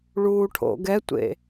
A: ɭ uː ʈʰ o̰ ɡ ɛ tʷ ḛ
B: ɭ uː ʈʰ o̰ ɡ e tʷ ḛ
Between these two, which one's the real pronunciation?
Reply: A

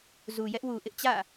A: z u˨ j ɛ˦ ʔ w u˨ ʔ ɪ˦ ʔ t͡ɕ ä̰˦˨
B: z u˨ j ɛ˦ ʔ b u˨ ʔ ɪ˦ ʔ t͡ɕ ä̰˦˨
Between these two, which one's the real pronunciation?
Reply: A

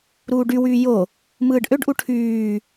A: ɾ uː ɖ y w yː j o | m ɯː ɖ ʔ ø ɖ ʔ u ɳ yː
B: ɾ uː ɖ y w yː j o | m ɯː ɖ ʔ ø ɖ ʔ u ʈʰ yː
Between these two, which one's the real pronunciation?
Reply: B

